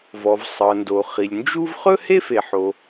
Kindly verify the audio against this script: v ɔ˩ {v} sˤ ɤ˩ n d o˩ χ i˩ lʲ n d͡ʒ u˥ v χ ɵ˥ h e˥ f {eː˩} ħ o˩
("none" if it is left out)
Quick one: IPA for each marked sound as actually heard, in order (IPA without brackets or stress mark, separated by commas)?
v, e˩